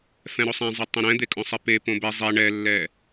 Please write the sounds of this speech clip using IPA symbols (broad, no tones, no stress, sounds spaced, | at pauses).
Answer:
f ɛ̃ ɾ o sˤ ɛ̃ zˤ ʏ tˤ õ ɾ ɛ̃ d̪ e kʼ õ sˤ e p e p õ b ɛ zˤ ɛ ɳ ɛ lː ɛ